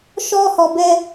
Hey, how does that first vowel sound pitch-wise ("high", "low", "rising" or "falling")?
high